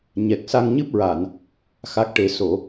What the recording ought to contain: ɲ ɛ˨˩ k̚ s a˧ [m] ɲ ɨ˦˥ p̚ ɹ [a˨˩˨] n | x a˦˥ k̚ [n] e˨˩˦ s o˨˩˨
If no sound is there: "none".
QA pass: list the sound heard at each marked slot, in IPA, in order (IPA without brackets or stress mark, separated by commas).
ŋ, a˨˩˨, ʈ